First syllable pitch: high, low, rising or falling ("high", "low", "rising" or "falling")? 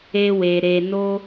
high